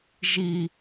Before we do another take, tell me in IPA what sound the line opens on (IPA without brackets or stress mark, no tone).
ʒ